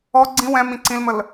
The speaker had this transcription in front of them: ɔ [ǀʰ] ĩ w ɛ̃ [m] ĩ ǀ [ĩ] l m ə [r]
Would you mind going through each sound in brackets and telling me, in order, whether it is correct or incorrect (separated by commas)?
incorrect, correct, correct, incorrect